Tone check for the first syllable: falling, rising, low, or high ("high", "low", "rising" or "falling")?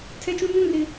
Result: high